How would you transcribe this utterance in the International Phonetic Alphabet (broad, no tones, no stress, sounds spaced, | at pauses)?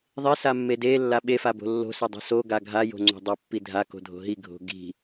ðˤ e s a mː e d e lː a ɓ e f a b o̤ lː o̤ s e dˤ o̤ s o ɡ a ɡʱ a j o̤ ŋ͡ǀ o̤ dˤ a pː i dʱ a k o̤ dʱ o̤ ɦ i ɡʱ o̤ ɡ i̤